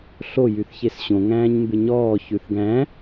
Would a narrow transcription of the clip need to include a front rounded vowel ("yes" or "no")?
yes